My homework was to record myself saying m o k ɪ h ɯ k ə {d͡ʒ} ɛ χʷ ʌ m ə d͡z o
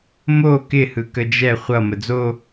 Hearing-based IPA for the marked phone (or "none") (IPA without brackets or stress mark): d͡ʒ